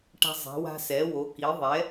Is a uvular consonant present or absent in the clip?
absent